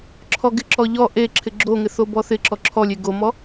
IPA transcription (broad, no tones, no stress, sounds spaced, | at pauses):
ǁʰ ɔ ɡ ɪ ǁ ɔ ʎ ɔ ʔ e ǁʰ ɪ ɡ͡ǁ o ŋ ɪ θ o b ɔ θ ɪ ǁ ɔ ǁʰ ɔ lʲ e ɡ o m ɔ